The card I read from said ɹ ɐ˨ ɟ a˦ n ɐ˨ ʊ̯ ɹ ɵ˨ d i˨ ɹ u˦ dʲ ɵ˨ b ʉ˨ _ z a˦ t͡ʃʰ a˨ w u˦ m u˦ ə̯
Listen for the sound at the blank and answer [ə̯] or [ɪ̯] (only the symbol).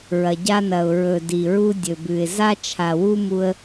ɪ̯